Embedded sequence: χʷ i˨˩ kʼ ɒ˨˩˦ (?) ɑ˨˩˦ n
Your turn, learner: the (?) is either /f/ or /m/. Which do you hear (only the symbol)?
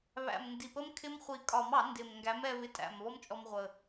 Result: m